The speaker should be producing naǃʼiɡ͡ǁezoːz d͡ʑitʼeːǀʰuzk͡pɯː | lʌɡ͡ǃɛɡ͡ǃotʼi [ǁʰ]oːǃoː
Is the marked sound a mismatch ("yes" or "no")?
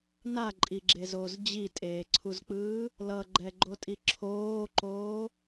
no